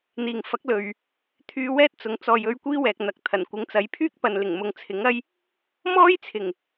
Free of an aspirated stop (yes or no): no